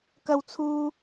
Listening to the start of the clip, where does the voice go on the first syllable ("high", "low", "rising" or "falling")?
high